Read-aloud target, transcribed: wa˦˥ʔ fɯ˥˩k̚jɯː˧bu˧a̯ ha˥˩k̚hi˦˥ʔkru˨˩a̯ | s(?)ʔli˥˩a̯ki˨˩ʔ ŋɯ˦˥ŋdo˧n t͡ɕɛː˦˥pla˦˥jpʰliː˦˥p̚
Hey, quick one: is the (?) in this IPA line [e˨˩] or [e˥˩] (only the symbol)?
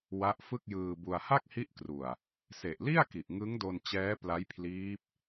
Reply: e˨˩